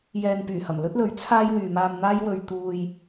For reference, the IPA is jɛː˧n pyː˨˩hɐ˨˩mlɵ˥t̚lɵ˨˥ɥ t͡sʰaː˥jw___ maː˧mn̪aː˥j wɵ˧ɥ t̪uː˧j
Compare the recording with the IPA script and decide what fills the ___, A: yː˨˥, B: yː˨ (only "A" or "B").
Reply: B